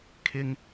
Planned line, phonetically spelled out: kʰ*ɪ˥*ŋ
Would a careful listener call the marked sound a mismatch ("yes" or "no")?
no